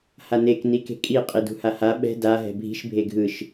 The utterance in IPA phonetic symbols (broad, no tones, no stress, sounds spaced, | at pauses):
h a n e k n i k e̤ kʼ i qʼ i d ṳ h a h a ɓ ɛ̤ d a ɦ ɛ̤ bʱ i̤ ʃ bʱ e ɡʱ ɯ ʃ